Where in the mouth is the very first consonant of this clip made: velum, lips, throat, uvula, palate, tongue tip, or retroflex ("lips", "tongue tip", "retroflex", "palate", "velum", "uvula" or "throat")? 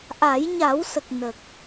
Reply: throat